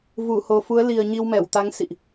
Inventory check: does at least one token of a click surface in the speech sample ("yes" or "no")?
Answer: no